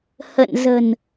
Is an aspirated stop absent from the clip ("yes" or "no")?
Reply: yes